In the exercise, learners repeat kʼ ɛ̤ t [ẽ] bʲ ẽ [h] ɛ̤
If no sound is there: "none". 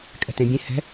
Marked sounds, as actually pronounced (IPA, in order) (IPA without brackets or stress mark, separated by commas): ẽ, h